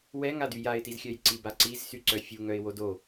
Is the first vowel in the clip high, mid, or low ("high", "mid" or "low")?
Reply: mid